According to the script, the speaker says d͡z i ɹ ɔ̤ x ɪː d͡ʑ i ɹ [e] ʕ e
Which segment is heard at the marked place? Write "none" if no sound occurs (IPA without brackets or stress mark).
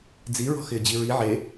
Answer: i